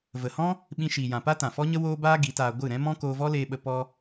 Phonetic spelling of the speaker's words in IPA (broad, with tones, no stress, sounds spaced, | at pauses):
v ə˨ h ɔ̃˦ | ɓ ĩ˧ ʃ iː˨ j ã˨ p a˦ t ã˨ f ɔ˦ ɲ ə˦ w oː˦ b aː˦ ɡ i˨˦ t aː˧ ɡʷ ɨ˦˨ ɾ ɛ̃˦ m ɔ̃˦ k oː˧ v ɔ˦ l eː˧ ɓ ə˧ p ɔ˧